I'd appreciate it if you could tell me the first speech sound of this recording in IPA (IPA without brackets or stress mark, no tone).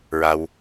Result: ɹ